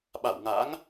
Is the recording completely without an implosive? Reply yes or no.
no